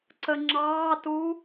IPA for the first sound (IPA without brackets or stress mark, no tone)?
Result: ǀ